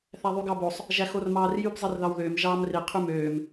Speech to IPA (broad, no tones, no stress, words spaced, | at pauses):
θæðˤyɡɑbosˤ | ʒæxormɑːrjyb zˤirðɑwðøːm ʒɑːmri qʰymøːm